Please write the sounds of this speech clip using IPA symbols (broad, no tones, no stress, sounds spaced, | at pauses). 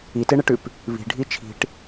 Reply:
i t e ɳ e ʈ ʉ p | β i̤ ɖʱ i t͡ʃʰ i̤ ʈ